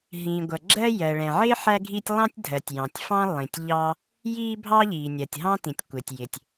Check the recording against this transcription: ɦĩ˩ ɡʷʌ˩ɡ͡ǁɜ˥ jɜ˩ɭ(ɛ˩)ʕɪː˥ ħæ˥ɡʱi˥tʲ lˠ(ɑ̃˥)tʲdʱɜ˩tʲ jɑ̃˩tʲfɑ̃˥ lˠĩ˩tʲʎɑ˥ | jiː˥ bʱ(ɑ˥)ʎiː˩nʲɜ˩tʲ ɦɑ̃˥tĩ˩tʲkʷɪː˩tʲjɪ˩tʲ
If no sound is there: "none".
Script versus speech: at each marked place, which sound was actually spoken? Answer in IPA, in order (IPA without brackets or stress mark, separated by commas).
ɛ̃˩, ɑ̃˥, ɑ˥